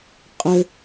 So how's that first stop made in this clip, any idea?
ejective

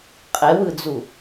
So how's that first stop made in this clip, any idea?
ejective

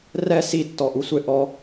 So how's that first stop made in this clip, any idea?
plain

